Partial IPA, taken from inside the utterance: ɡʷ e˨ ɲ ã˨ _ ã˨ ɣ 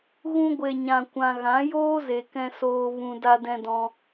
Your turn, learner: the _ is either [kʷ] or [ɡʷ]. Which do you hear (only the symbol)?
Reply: kʷ